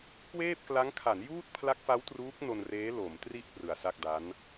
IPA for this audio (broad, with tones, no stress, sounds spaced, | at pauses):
k w eː˥˩ p̚ k l a˦˥ ŋ kʰ a˩˦ n j uː˥˩ t̚ pʰ l a˦˥ k̚ f a˦˥ w t r uː˦˥ k̚ n o˧ n r eː˦˥ l o˩˦ m t r i˥˩ ʔ p r ɯ˨˩ a̯ s a˥˩ k̚ d a˦˥ n